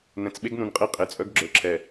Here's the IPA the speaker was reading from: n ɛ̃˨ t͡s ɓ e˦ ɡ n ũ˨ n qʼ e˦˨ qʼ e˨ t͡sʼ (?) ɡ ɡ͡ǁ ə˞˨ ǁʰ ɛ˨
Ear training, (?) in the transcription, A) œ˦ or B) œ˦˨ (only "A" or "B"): A